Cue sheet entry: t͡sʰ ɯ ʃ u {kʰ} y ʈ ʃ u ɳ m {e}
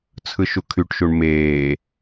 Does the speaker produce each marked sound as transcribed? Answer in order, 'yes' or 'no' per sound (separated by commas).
yes, no